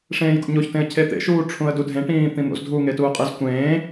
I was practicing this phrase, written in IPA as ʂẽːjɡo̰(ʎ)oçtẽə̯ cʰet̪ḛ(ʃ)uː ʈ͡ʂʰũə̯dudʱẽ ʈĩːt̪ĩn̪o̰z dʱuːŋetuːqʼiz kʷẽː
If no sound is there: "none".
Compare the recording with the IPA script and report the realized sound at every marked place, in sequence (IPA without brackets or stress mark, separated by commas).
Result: ɲ, ʃ